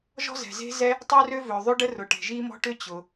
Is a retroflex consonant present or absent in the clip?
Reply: present